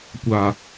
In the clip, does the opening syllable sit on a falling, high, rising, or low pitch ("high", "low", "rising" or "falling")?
low